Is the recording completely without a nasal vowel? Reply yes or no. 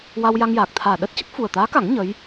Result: yes